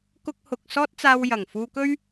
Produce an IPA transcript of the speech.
k ʊ˧ k̚ h ʊ˨ k̚ s ɔː˥ t̚ t͡s aː˧ w j ɐ˨˩ ŋ f uː˧ k ɵ˥ ɥ

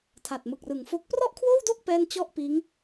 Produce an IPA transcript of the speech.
tʰ a˨˩ t̚ m ɯ˨˩ k̚ r ɯ˨˩ ŋ f o˥˩ k̚ p r ɔ˥˩ ʔ kʰ w oː˥˩ w d o˥˩ k̚ p ɛː˥˩ n t͡ɕ ɔ˥˩ ʔ p iː˦˥ ŋ

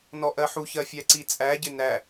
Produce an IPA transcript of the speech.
n ɔ ʔ ɜ ħ u ç ɜ fʲ æ ǀ i t͡sʼ æ ɟ ɪ n æ

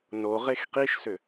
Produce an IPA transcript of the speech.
n o ʁ e x q i ʃ s ʏ

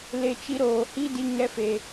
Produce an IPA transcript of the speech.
l e˦˨ t͡ʃ i˧ ɾ oː˨ h i˦ d i˧ ŋ ɛ˧ f e˨

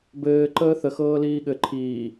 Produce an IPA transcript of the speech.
b ɘː ǃ əː θ ə x ɤː l iː ɠ ɘ ǃʰ iː

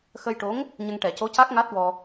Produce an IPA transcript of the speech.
x ə˧ j ʈ o˧˥ ŋ | ɲ ə˧ ŋ ʈ ɛ˨˩˦ c o˧˥ c a˦˥ k̚ ŋ a˦˥ t̚ w ɔ˧

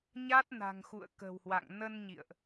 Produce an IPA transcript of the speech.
ɲ a˦˥ t̚ n a̤˨˩ ŋ x ṵ˧˨ ə̯ k ə̤˨˩ w h w a̰˧˨ ŋ n ə˧ n ɲ ḭ˧˨ ə̯ ʔ

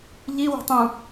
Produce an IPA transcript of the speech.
ʎ i w o̤ tˤ ũ

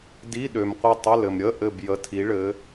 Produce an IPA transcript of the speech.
d i˧˥˧ ɗ ø˨ m qʷ ə˦˨ tˤ ə˧˥˧ l ɘ˨ m ɾʲ ə˧˥˧ ʔ ɘ˦˨ b j ə˧˥˧ tʰ i˨˥ ɭ ɘ˨˥

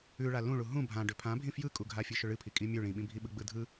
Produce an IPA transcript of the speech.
ʉ ɭ a l ũ ɭ u ɦ ũ bʱ ã ɖ ʏ pʰ ã bʱ ĩ f j ɯ kʼ u ɡʱ a fʲ ɨ ʃ ʏ ɭ ɨ pʰ i kʼ i mʲ ʉ ɭ ĩ ɓ ĩ bʱ i ɓ ɯ ɡ͡b ɯ dʱ ɯ

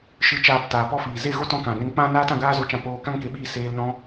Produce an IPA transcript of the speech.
ʃ ɨ˧ t͡ʃ aː˧ p t aː˨ p ɔ˧ f iː˨ z e˦˨ ɣ o˦ t ɔ̃˧ k ã˨ n e˧ ŋ k͡p ã˦ n aː˦ t ã˧ ɡ aː˦ z o˧ t͡ʃ ã˧ p oː˧ k ã˦ ŋ k e˨˦ ɓ iː˧ s eː˧ l n ɔ̃˦

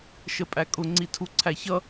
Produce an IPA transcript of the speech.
ʃ ə pʼ æ kʼ ʊ ŋ͡ǀ i tʰ u ǀʰ æ ç ʌ

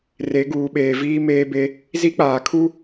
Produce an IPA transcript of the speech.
r e˨˦ ɡ uː˨ ɓ eː˨ v iː˦ m eː˦ b e˦ | z i˦ k͡p aː˨ kʰ u˦

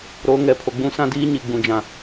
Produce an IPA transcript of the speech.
ɾ o˨˦ ŋ ɛ˨ pʰ o˨ ɡ͡b ũ˦ s ã˦ d iː˦ ɲ i˨ ɡ͡b ũ˨ d͡ʒ ã˨

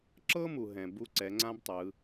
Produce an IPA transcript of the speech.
ǁ ɤ˥ m u˩ ɦ ɛ̃˩ b u˧ ǀ ɛ˩˧ ŋ͡ǀ ã˥ b tˤ ɯ˩˧

